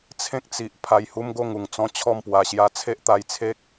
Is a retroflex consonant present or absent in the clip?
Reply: absent